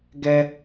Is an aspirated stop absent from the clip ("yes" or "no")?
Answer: yes